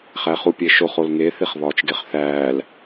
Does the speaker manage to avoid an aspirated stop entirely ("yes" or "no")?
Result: yes